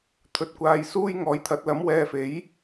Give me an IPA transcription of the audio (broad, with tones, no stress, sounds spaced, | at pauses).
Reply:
t̪ʰ ɵ˧ t̚ kʷ aː˧ j s uː˥ j ŋ ɔː˨˥ j t̪ʰ ɐ˨˥ t̚ l ɐ˨˥ m w ɛː˧ f e˨˥ j